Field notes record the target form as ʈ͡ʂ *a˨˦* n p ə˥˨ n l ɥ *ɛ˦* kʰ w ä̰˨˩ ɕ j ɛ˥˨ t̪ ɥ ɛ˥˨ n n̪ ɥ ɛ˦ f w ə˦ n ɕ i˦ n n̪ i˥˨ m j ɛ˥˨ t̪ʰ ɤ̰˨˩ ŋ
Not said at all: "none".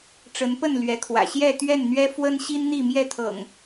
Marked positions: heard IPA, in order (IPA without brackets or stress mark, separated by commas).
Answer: ə˨˦, ɛ˨˦